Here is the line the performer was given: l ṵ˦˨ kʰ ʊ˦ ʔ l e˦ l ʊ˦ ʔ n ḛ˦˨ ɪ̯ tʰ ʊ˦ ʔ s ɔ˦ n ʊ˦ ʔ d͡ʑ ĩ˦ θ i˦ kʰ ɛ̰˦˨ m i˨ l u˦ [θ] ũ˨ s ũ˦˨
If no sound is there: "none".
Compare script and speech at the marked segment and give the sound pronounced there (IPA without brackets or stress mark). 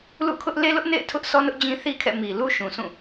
ʃ